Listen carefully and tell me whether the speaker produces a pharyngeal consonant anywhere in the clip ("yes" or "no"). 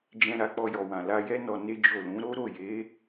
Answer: no